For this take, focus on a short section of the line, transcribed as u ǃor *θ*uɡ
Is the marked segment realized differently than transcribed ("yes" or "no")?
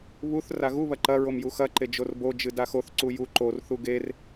no